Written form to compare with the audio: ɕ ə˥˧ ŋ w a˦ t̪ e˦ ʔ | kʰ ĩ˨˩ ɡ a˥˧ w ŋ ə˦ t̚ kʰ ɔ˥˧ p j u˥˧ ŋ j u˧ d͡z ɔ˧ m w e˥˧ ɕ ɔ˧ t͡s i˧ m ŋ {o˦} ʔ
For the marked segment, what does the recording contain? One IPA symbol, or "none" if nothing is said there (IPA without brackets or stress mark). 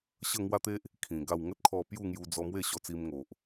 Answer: o˨